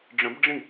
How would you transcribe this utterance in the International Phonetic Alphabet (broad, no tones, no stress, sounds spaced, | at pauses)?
ɖ͡ʐ ə̃ b ɖ͡ʐ ĩ